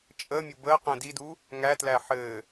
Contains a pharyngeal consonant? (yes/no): yes